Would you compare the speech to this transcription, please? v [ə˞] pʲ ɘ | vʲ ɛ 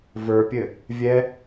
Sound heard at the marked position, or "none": ə˞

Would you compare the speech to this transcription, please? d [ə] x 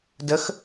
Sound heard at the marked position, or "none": ə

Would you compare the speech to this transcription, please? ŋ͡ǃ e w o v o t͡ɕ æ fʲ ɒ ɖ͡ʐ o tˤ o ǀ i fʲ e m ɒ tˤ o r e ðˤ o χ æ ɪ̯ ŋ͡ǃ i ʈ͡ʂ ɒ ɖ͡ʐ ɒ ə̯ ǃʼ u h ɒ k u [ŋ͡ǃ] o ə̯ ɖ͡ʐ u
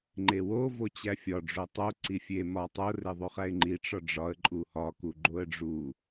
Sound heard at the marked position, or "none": ɡ͡ǃ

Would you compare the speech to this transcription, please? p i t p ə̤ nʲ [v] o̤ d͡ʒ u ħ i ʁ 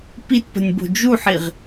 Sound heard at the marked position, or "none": b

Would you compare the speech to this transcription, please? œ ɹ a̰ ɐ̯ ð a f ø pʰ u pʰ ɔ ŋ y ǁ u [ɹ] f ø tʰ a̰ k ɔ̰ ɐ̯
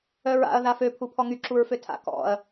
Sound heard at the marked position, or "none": ɹ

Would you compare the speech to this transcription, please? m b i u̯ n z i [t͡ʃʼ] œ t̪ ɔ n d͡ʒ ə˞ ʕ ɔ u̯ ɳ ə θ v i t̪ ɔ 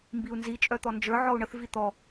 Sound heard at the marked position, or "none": t͡ʃʼ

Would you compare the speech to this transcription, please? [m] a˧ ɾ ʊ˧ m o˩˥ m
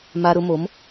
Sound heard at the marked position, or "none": m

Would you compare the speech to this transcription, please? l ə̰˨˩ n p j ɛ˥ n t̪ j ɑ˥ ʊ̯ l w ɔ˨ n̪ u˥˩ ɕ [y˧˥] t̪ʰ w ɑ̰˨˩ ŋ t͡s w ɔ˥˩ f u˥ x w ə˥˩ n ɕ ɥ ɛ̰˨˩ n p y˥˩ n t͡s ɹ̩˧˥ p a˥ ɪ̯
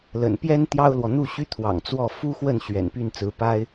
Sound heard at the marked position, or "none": y˥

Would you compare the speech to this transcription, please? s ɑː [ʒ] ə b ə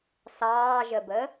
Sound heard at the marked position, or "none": ʒ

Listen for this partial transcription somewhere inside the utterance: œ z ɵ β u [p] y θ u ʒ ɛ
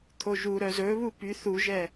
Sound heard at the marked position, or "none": p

